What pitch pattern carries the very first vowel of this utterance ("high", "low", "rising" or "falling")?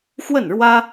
falling